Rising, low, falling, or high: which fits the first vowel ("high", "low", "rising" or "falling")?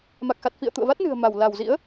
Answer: low